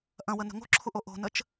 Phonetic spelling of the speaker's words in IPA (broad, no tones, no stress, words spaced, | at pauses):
ʔɐ̃wənə̤ ŋo̤ǁʰuʔo ʔo̤nət͡ʃ